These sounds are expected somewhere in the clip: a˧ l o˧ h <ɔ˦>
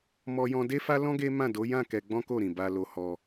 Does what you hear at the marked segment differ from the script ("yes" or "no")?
yes